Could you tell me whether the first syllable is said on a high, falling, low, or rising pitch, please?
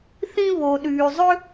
high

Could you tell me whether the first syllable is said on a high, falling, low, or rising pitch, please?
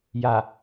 low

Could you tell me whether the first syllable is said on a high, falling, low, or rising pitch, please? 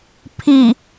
low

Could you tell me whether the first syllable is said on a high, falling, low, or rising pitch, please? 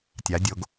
rising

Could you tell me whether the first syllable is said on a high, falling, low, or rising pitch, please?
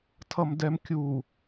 low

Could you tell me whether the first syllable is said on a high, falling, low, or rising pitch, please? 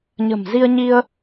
low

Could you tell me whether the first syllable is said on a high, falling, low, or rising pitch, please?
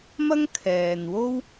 high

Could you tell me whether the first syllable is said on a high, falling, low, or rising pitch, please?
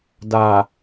low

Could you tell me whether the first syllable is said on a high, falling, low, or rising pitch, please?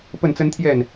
falling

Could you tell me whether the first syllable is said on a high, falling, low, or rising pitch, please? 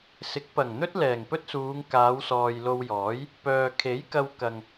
rising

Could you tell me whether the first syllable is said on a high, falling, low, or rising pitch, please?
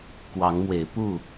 rising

